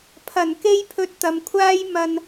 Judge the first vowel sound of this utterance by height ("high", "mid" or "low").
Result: low